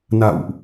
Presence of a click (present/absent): absent